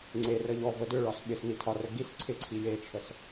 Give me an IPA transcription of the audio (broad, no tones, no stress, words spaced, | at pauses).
ŋ͡ǀerə ʎɔvə dʏɭɒs ɓɪsni tʰɒrə ɡis ǀʰɪǀʰi jet͡ʃʰəs